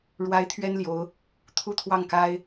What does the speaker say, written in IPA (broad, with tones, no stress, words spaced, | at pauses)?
ɻwa˧˥ɪ̯ t̪ʰɥɛ˥nljo˧˥ʊ̯ | t̪ʰu˥t̪ʰwɑ˥˩ŋka˥ɪ̯